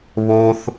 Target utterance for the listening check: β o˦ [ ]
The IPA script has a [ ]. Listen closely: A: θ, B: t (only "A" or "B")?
A